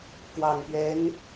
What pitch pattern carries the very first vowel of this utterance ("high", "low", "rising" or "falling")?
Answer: low